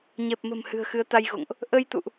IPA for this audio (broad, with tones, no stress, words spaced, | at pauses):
ɲɛ˨˩p̚mə̤˨˩m hɨ̤˨˩ə̯xɨ˨˦ə̯t̪a˧jɣo̰˧˨ŋʔ | ʔə˧jt̪ṵ˧˨ʔ